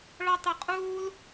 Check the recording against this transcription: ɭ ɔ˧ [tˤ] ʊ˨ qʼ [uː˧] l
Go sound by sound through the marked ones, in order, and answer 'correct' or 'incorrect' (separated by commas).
correct, correct